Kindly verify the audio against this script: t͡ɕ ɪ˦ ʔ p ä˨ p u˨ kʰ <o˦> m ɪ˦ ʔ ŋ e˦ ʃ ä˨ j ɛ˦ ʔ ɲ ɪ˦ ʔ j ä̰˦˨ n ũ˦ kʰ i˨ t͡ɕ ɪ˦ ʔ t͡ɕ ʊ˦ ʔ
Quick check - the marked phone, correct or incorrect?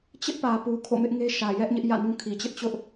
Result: incorrect